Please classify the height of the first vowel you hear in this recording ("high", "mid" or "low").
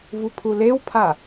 high